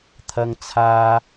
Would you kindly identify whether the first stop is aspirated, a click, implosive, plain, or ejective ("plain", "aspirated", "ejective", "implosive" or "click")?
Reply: aspirated